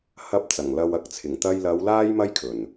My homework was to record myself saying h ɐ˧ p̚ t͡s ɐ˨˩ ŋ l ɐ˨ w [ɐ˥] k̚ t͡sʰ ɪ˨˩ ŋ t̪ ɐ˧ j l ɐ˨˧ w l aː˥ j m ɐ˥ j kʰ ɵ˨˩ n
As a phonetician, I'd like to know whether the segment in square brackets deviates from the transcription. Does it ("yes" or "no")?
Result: yes